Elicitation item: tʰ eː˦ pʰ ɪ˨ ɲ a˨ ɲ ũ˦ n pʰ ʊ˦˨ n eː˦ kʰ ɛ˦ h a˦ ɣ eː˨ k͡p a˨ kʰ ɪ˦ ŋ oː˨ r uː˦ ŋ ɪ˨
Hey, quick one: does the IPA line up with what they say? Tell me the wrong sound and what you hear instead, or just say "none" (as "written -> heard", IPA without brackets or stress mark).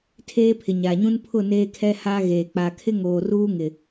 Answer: none